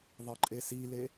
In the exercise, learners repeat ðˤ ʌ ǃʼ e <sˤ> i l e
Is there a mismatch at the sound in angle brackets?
yes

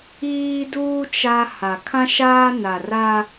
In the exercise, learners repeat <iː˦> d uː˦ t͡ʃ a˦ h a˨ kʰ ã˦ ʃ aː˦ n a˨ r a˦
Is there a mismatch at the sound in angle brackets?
no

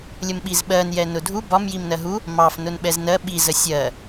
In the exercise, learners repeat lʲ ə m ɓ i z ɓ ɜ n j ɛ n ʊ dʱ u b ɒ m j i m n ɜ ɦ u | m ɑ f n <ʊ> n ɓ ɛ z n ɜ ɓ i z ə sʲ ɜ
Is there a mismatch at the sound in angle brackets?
no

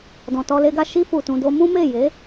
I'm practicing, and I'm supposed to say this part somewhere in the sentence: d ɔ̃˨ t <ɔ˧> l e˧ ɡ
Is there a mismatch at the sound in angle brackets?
no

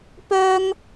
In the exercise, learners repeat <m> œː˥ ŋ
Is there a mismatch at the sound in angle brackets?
yes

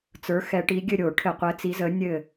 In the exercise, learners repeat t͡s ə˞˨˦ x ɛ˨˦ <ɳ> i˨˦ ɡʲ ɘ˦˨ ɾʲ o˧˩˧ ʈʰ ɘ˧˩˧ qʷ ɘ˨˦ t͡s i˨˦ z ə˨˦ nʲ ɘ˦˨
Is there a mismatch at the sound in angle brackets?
yes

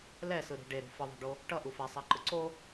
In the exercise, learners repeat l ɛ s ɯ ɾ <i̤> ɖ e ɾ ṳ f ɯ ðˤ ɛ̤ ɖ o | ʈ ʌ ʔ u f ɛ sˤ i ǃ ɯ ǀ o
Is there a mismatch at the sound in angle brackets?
no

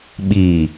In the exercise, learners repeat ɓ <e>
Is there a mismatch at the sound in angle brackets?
yes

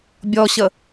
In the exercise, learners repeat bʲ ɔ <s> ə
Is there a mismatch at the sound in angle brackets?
yes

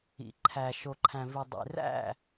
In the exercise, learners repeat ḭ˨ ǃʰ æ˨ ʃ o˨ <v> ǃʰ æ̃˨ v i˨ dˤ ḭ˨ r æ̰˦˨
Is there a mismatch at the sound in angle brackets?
yes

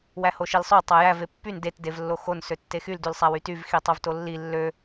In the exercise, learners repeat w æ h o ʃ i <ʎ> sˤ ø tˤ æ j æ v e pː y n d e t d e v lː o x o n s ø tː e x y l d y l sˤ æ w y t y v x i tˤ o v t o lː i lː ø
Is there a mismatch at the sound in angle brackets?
yes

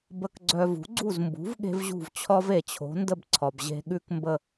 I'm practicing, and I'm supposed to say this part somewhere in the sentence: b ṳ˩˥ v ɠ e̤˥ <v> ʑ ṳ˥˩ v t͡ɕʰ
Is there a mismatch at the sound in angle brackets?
no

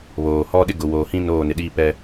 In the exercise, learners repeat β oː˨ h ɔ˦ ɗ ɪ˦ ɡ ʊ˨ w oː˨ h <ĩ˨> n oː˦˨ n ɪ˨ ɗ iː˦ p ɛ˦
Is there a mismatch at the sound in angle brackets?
yes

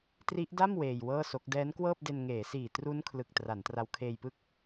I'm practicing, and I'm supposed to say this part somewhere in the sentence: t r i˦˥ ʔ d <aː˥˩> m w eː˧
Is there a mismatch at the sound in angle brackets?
yes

